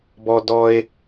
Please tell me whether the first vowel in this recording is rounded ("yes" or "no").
yes